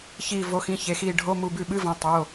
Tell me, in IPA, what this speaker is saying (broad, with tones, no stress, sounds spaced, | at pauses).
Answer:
ç iː˧˩ v o˩˧˩ x ĩ˩˧˩ ç e˩˧˩ x iː˧˩ ɖʱ o˧˥˧ m u˧˩ b ʉ˧˩ ɓ ɨ˧˥˧ v ɐ̃˩˧˩ tˤ o˩˧˩